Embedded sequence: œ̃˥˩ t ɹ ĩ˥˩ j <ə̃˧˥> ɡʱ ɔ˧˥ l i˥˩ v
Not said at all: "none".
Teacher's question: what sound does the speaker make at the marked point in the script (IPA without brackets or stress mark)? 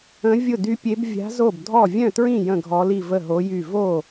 ə̃˥˩